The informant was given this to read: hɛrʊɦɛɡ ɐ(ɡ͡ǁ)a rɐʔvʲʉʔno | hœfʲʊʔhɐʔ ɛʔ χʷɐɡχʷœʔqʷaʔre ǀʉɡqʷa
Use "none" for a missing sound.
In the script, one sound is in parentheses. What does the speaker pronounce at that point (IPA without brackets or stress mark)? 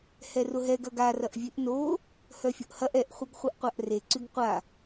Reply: ɡ